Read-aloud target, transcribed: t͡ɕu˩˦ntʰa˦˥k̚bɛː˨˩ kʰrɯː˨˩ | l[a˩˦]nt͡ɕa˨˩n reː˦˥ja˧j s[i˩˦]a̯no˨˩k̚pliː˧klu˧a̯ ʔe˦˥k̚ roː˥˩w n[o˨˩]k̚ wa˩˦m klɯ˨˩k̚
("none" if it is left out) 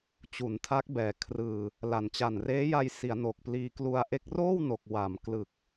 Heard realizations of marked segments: a˨˩, i˩˦, o˨˩

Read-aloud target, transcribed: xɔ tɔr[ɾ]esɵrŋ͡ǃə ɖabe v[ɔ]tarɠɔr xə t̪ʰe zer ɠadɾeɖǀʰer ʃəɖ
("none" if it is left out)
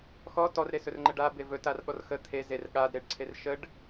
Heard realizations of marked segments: ɾ, ɵ

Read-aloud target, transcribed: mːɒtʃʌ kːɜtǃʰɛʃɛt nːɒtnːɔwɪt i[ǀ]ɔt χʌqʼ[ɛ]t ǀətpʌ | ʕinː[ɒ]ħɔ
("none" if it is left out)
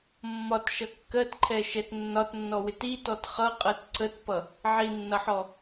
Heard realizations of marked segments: t, ɜ, ʌ

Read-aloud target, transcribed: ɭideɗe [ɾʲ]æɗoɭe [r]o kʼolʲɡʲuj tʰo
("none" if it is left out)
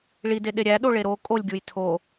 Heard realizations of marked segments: ɾʲ, ɾ

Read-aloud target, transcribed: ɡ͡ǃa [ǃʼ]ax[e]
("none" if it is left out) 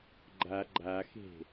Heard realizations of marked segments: ɡ͡ǃ, e̤

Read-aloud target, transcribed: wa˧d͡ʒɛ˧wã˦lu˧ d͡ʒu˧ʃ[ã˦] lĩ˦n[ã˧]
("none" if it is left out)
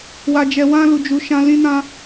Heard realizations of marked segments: ã˦, ã˦

